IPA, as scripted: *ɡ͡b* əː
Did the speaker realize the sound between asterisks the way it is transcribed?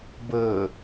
no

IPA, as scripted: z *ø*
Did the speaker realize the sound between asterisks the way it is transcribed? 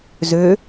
yes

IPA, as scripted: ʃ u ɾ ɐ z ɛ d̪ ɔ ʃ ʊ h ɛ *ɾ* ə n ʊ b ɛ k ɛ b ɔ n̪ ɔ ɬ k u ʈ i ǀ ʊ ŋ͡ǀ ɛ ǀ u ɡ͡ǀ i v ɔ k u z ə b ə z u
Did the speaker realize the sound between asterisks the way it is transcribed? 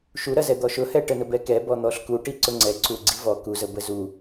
no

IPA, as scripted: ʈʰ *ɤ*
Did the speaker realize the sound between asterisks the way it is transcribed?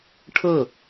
yes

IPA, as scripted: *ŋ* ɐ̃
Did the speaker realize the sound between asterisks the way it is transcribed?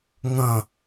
yes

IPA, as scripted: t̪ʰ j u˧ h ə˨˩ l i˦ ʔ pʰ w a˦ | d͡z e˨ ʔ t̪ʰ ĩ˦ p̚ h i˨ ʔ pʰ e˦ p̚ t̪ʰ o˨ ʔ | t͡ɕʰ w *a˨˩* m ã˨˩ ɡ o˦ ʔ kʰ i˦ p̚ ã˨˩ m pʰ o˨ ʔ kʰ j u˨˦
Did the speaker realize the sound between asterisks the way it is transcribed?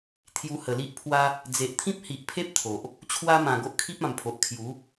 no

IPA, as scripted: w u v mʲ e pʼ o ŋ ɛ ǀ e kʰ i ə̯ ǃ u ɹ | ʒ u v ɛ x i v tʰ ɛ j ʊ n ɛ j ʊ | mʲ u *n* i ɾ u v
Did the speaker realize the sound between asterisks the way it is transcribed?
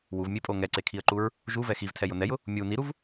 yes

